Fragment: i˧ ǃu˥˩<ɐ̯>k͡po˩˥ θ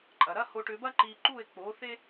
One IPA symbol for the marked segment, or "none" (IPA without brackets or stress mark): e̯